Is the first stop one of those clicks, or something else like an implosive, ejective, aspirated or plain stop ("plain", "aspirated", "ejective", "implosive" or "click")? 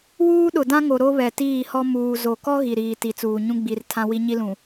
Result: implosive